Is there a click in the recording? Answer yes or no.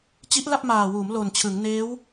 no